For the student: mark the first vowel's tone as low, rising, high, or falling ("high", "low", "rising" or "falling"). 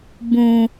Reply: low